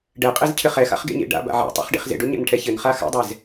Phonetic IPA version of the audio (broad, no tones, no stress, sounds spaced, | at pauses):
ɖ ɛ qʼ e z cʰ ɘ χ ɛ x a̰ χ ɡ ḛ ɲ ḛ ɖ a̰ b a̰ ʕ ɛ̰ tˤ a̰ χ ɖ ḛ χ z ḛ ɖ o ɲ a̰ n ʈʰ ɛ ç ɘ n χ a x a̰ dˤ ɛ z